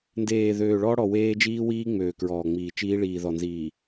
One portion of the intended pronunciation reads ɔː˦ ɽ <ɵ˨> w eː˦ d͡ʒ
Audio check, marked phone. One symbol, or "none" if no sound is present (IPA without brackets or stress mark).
ɔ˨